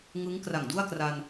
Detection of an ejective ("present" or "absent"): absent